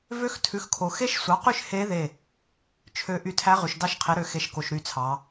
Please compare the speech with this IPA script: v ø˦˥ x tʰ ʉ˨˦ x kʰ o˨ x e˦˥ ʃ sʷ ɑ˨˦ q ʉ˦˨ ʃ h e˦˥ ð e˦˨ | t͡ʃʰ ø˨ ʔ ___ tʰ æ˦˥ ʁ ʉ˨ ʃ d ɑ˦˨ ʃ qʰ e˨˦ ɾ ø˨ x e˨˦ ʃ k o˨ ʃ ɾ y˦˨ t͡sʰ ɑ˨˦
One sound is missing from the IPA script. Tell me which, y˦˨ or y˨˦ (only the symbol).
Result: y˦˨